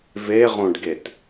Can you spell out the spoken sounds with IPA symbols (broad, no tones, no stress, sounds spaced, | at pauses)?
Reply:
v e ʁ õ ɖ ɡ e t